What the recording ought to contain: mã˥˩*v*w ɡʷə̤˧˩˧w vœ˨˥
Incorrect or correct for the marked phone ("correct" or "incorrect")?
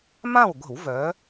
incorrect